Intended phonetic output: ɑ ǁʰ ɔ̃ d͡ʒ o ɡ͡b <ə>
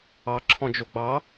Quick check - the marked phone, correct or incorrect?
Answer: incorrect